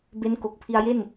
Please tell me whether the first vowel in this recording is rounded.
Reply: no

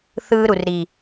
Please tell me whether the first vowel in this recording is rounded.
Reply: no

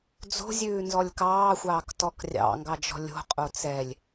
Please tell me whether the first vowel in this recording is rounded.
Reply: yes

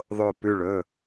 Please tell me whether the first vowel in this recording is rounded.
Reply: yes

